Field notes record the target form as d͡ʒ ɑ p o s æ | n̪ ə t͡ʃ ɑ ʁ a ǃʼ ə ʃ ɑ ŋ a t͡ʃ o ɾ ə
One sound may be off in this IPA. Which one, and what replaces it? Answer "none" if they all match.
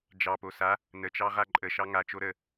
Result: æ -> a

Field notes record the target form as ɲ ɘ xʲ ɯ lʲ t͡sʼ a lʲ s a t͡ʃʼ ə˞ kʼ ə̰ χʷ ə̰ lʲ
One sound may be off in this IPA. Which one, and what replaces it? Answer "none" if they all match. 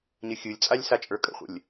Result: none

